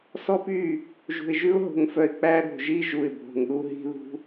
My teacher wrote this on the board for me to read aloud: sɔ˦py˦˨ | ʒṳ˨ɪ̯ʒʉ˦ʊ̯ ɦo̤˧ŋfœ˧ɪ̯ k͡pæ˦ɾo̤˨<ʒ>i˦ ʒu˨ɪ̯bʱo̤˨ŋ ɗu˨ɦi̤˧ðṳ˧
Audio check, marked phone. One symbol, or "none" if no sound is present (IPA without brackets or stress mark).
ʒ